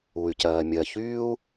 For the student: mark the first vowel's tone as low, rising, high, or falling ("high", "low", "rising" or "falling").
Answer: low